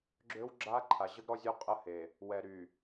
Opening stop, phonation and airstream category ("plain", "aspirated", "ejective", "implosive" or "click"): click